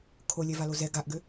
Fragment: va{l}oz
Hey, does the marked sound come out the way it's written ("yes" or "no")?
yes